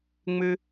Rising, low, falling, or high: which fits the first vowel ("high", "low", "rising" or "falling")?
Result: high